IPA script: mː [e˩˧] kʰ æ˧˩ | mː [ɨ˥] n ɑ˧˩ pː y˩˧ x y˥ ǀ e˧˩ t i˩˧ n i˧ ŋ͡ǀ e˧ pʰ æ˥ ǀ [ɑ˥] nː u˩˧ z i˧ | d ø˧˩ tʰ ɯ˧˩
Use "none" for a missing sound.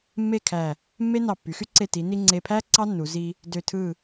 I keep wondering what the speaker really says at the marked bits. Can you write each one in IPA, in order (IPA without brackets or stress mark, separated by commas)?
e˥˧, e˥, ɑ˥